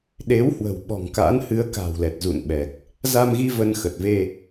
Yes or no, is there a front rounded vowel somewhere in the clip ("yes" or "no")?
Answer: no